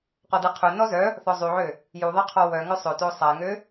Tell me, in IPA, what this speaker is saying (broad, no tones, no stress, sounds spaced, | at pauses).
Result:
q ɔ d ɛ qʰ ø n ɔ z œ | θ ɔ zˤ y ʕ ø | j u ðˤ ɛ qʰ ɔ w œ ŋ œ sˤ ø t o sˤ a ŋ ø